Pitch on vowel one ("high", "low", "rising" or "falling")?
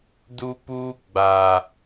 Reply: high